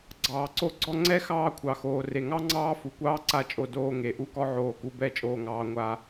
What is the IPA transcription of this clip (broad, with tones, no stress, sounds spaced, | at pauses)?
ɡ͡ǀ ɑː˨ ǀ o˧ ɡ͡ǀ ɔ˧ ŋ͡ǀ ɛ˦ x ɑː˧ kʷʰ ɑ˨ x oː˨ r e˨ ŋ ɑ˦ ŋ͡ǀ ɑː˦ f u˨ kʷ ɑː˦ ǀ a˦˨ t͡ʃʼ o˧ d oː˧ ŋ e˨ ʔ u˦ k ɔ˦ ʕ oː˧ k u˧ b ɛ˦˨ t͡ʃʼ oː˧ ŋ ɑː˧ ŋʷ a˧